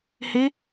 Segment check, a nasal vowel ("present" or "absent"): absent